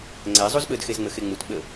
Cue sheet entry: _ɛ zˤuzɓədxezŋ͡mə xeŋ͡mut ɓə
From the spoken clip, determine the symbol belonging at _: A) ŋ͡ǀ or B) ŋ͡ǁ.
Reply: A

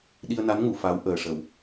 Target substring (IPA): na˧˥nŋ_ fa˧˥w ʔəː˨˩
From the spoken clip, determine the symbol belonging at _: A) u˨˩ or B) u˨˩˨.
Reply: B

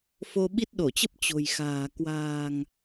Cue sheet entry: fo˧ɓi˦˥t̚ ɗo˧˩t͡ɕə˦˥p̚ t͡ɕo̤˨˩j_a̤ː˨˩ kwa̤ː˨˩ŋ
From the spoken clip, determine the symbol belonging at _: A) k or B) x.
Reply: B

